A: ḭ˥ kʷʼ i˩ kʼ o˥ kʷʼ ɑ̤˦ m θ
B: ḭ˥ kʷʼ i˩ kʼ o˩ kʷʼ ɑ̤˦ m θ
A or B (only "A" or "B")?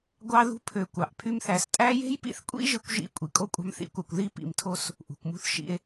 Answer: A